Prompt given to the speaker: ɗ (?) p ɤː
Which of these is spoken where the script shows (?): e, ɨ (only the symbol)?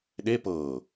e